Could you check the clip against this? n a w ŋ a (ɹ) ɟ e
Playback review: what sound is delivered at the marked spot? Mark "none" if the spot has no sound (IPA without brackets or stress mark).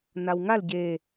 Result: l